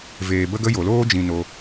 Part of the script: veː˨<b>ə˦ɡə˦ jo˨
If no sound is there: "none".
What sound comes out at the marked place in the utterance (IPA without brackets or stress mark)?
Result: b